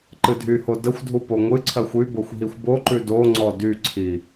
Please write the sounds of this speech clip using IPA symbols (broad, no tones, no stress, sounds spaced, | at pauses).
ǃ ɨ dʱ y h o d ə xʷ dʱ u p o ŋʷ ɨ ǀʰ ɜ xʷ y b o xʷ ɦ i xʷ b o ǃ ʉ d o ŋ͡ǀ ɔ d y ǀʰ i